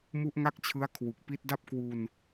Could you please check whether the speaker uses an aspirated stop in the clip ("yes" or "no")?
yes